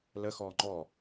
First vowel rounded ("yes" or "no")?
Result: no